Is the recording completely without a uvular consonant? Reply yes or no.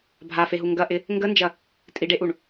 yes